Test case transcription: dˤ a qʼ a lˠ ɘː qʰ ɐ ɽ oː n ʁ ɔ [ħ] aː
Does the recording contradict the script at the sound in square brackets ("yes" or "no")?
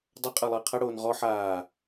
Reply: no